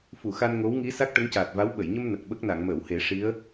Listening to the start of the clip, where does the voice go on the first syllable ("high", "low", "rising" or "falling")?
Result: low